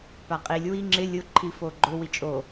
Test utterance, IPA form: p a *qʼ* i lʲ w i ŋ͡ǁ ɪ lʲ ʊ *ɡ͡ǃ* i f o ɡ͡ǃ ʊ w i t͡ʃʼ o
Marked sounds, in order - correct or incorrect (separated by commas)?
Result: correct, incorrect